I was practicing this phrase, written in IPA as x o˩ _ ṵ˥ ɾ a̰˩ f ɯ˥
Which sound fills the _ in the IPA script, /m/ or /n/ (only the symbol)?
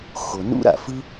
n